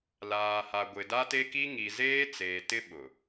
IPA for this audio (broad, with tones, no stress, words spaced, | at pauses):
laː˨ha˨ɡʷɪ˨ da˦te˦ki˦ ŋi˨zeː˦ t͡seː˨tɪ˦ ɓʊ˨